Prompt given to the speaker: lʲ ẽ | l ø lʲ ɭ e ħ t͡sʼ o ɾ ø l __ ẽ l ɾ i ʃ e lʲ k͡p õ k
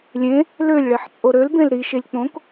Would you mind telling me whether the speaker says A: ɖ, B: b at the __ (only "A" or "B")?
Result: B